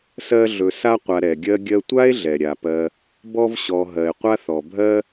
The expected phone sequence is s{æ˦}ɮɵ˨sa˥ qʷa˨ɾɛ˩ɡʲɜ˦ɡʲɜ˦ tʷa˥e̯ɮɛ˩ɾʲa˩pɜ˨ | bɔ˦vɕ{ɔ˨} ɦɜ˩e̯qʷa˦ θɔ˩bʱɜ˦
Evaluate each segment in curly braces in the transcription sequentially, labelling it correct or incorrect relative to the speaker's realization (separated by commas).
incorrect, correct